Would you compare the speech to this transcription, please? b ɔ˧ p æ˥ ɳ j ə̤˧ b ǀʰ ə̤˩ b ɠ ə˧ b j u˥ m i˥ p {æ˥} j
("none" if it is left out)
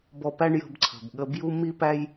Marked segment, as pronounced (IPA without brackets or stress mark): æ˥